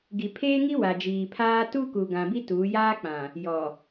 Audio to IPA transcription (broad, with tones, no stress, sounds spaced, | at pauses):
ɡ i˨ pʰ eː˦ ŋ i˦ w a˨ d͡ʒ iː˨ pʰ aː˦ t u˦ k u˨ ɡ ã˨ b i˦ t uː˨˦ j aː˦ k͡p ã˨ | j ɔ˨